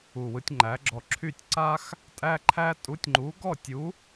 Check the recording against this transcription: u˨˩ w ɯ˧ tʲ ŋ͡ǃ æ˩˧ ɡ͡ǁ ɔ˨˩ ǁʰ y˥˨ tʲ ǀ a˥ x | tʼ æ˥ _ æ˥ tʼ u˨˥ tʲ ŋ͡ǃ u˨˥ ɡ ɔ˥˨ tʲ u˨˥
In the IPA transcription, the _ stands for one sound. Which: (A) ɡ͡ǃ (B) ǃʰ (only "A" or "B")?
B